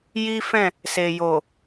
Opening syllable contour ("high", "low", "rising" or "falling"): high